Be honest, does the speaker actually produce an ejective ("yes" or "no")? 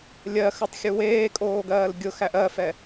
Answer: yes